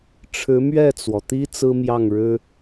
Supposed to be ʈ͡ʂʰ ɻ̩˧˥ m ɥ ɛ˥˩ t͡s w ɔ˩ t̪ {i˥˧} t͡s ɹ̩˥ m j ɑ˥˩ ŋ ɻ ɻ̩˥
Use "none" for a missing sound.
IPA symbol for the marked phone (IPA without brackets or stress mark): i˥